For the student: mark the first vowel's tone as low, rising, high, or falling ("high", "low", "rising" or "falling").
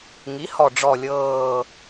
rising